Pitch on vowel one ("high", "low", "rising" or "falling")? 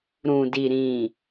low